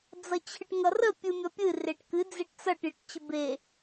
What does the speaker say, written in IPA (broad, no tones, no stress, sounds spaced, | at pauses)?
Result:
d͡z ʌ t͡ɕʰ ɨ ʈ ŋ ʌ r ə pʲ ɨ mʲ ʌ pʲ ɨ r e ʈ k ɨ d͡z e ʈ t͡s ʌ ʈ j ə ʈ t͡ɕ ə b e